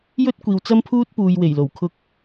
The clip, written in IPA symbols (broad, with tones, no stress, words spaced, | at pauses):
jɵ˥t̚ kʷiː˨wt͡sɐ˥mpʰuː˥t̚puː˨j we˨˩jlo˨˩w kʰʊ˥k̚